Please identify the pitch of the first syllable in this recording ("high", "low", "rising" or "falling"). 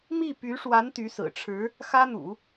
falling